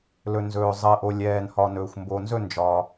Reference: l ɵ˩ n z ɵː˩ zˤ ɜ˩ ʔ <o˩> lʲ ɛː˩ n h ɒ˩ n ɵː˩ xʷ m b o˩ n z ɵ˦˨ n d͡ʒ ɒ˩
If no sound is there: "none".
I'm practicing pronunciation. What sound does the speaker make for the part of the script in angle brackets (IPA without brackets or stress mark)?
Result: o˩